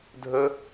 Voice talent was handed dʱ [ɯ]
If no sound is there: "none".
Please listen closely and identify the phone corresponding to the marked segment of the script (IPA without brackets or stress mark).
ə